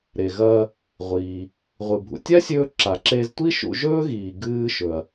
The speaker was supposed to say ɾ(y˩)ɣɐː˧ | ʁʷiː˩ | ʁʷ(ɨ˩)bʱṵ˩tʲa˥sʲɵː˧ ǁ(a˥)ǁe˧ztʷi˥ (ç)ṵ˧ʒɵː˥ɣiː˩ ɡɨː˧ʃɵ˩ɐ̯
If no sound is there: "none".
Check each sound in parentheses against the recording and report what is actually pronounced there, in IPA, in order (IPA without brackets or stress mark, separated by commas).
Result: e˩, ɨ˩, a˩, ʃ